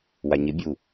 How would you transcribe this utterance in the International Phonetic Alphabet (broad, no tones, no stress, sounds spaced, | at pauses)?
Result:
w a ɲ ɪ bʲ u